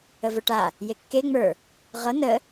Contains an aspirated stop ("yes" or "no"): no